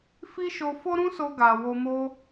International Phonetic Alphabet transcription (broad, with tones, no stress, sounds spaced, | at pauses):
f i˦ ʃ o˧ f o˦ ɾ ũ˦ s o˧ ɡ a˨ w o˧ m o˦